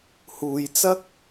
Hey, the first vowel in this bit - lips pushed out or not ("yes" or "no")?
yes